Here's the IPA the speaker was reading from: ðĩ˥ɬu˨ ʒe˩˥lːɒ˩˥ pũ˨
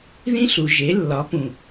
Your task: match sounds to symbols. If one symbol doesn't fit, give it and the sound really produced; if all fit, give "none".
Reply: none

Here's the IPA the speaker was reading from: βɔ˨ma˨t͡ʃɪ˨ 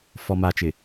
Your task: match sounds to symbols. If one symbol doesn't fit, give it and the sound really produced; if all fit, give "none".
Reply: β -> f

